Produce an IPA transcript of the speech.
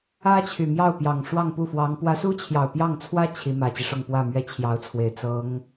ä˥ t͡ɕʰ y˨˩ m j ɑ˥˩ ʊ̯ p j ɑ˨˩ ŋ ʂ w ɑ˥˧ ŋ p u˥˩ f w ɑ˧˥ ŋ p w ä˧˥ s u˥ t͡ɕʰ j ɑ˨˩ ʊ̯ p j ɑ˥˩ ŋ t͡sʰ w ä˥ t͡ɕʰ i˧˥ m ä˨˩ t͡ɕ i˦ ʂ ʊ˥˧ ŋ p w ä˥˩ m ɥ ɛ˥ t͡ɕʰ j ɑ˧˥ ʊ̯ t͡sʰ w e˨˩ ɪ̯ t͡s ɤ˧˥ ŋ

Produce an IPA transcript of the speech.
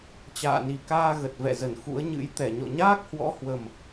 t͡ɕ a̰ː˧˨ n i˨˩ k aː˧ ɣ ə˨˩ t̚ v ɛ̰˧˨ z ə˧˩ n x ṵ˧˥ ə̯ ɲ ɨ̰˧˥ j t̪ ɛ˧˩ ɲ ɔ̰˧˨ ɲ aː˦˥ k̚ h w ɔ̰˧˥ h w ə˨˩ m

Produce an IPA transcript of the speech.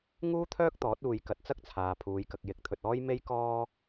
ŋ uː˥ t̪ʰ œː˥ k̚ t̪ ɔː˨˥ t̚ uː˧ j k ɐ˧ t̚ t͡s ɐ˥ k̚ t͡sʰ aː˨ pʰ uː˨˧ j k ɐ˨ k̚ j ɪ˨˥ k̚ t̪ʰ ɵ˨ t̚ ɔː˥ j m e˥ j k ɔː˥

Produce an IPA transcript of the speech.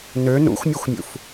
n ø n ṵ xʷ mʲ ɤ xʷ mʲ ṵ f

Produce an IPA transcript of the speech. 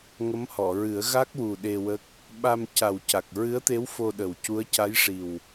ŋ ə˧˥ m h ɔ˨˩˨ ɹ ɨ˨˩˦ ə̯ ɣ a˦˥ k̚ w u˨˩ ɗ e˧ w ə˦˥ k̚ | ɓ a˧ m c a˨˩ w c a˨˩ k̚ ɹ ɨ˧˥ ə̯ t̪ e˧˥ w f o˧ ɗ ə˨˩ w c u˧˥ ə̯ c a˧˥ j ʂ i˨˩ w

